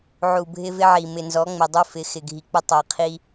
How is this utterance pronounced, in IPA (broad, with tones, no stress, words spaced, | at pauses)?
ʕu˨ bʱɪ˦vɪ˦ʕi˨ mɪ˨nzɔ˨˦ŋ͡mɪ˨ dˤu˦fɪ˨˦ xɪ˨ɡʱi˨k͡pɪ˦ tˤɛ˨qʰi˦